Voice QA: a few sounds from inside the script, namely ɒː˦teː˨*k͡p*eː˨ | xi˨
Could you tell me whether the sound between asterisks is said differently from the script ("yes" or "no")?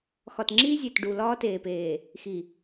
yes